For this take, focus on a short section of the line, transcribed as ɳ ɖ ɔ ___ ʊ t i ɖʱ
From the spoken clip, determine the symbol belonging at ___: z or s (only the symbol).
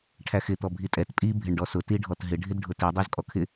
s